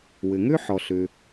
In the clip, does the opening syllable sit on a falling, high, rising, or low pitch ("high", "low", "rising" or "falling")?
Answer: low